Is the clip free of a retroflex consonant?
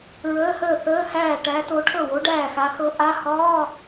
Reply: no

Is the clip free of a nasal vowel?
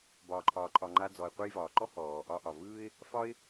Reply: yes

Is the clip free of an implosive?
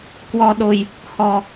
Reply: no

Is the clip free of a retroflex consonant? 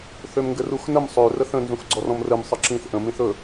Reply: yes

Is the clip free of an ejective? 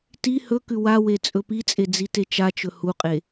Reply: no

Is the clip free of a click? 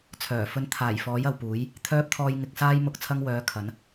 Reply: yes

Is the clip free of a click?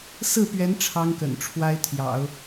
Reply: yes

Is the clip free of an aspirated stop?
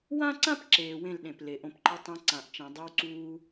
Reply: yes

